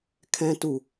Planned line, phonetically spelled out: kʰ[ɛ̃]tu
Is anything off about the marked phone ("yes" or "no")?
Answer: no